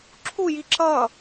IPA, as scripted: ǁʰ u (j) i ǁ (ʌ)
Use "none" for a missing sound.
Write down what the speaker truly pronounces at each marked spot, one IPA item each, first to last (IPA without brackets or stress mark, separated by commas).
j, ʌ